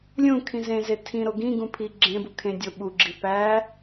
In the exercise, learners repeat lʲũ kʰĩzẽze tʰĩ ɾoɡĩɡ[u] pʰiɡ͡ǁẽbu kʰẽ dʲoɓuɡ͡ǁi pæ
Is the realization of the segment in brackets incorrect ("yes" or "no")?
yes